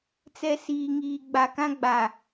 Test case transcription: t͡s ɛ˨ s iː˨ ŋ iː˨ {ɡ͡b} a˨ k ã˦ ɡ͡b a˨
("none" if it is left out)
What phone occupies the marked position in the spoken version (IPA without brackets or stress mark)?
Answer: ɡ͡b